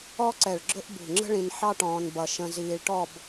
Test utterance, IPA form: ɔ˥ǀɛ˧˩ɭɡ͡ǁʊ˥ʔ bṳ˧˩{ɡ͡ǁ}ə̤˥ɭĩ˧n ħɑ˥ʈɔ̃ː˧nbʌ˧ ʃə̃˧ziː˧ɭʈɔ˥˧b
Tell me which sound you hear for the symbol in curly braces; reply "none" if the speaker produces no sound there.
ŋ͡ǁ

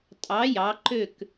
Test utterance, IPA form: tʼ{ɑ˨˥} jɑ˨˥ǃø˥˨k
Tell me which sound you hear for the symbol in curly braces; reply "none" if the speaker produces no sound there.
ɑ˨˥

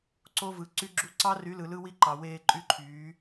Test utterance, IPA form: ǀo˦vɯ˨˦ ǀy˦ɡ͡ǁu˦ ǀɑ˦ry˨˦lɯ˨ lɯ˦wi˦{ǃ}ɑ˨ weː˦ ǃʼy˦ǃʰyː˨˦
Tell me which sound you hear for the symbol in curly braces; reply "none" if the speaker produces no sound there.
ǃ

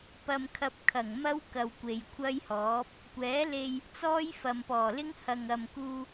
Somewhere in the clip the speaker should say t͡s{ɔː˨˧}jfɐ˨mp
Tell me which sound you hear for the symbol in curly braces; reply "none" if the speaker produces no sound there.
ɔː˥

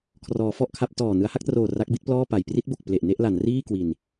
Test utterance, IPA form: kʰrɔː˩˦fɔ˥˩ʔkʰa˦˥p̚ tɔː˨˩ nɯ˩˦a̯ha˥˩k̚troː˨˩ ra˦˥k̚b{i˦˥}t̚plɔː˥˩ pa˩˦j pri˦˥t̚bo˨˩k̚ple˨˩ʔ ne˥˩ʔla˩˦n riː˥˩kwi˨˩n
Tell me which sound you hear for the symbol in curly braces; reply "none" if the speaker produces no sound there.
i˦˥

